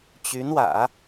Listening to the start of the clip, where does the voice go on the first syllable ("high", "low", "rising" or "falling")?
rising